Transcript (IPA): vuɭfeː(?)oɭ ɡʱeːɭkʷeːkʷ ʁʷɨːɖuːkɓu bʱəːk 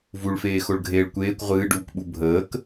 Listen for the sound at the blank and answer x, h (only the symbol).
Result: x